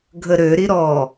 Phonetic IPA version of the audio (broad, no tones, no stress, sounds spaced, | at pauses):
ɡʱ ə ɾ ø ɾ i ɾ ɔ